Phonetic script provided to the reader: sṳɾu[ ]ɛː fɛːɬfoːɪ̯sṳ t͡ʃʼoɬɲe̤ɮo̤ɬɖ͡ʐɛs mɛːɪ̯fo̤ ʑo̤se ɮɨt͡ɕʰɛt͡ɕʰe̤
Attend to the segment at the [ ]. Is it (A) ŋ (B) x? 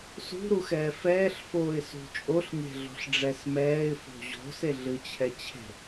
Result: B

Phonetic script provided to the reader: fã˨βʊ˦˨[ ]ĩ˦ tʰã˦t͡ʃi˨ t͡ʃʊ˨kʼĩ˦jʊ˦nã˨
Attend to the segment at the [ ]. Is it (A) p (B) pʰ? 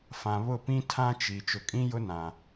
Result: A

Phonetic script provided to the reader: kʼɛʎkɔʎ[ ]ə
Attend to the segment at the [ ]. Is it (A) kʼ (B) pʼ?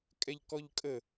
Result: A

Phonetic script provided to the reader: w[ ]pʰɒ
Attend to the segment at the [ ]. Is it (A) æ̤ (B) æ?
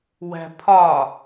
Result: A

